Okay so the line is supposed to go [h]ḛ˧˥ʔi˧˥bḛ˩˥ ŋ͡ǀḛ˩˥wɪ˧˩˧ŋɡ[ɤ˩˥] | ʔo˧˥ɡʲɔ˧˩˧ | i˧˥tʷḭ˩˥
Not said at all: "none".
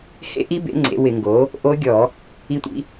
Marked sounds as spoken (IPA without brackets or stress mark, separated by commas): h, o˩˥